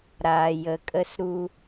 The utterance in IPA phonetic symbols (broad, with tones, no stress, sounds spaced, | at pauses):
ɾ aː˩ j ə˩ kʼ ə˧ s ɾ u˧